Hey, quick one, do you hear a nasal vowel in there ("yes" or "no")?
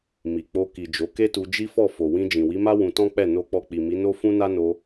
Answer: yes